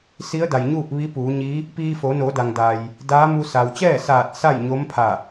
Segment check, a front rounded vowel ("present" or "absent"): absent